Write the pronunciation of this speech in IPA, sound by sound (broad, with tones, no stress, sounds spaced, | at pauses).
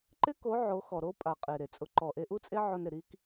ǃ ɪ˦ k o˨˦ ʕ o˨˦ x ɔ˨ ɾ o˦ pʼ a˨ qʼ e˨ ɾ e˨ t͡sʼ ʊ˧ ǃ ɔ˨ ʔ e˧ ʔ u˦ t͡sʼ e˦ ʕ o˧ n ɾ ɪ˨ ɾ i˦ k